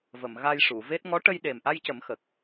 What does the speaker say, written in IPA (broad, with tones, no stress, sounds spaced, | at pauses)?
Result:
v ə˨˩˨ m ɣ a˧ j ʂ u˨˩˨ v e˦˥ t̚ ŋ ɔ˧˥ ʈ ə˧ j ɗ e˨˩ m ʔ a˧ j c ə˨˩˦ m x ə˨˩ k̚